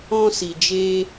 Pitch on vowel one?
high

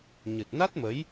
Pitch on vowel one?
low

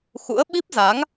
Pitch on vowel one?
rising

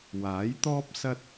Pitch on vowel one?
rising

